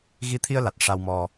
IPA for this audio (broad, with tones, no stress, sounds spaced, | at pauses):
ɣ i˧ t̪ʰ i˧ ə̯ l a˨˩ t̚ ʂ a˧ w m ɔ˧